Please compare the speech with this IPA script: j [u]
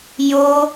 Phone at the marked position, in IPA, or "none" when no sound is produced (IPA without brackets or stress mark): o